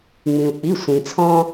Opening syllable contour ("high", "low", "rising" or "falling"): low